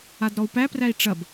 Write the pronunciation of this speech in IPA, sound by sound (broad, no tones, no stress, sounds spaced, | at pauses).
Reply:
a d ɾ ɔ u̯ p æ p r æ i̯ ʈ͡ʂ ɐ b